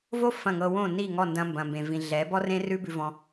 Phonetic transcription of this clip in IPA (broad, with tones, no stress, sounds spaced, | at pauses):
v o˦ f ɐ̃˦˨ ŋ ɤ˧ w õ˦˨ n i˦˨ ŋ ɔ˦˨ n d ɐ̃˧ m b ɐ̃˨ m b ẽ˨ v ĩ˨ ɮ ɛ˨˦ b ɔ˦ r ẽ˦ r ʉ˦ b ʉ˧ v ɔ̃˧